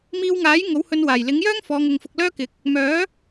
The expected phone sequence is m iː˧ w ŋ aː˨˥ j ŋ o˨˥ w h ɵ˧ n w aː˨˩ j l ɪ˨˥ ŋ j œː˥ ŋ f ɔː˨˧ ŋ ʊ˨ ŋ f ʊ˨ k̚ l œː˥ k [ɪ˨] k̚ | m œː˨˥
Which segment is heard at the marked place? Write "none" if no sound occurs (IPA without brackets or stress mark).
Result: ɪ˨˥